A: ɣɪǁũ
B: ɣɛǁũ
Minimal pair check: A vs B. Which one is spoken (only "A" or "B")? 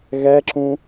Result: B